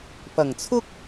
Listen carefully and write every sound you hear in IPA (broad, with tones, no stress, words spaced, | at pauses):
pɐ˨˩ŋt͡sʰʊ˥k̚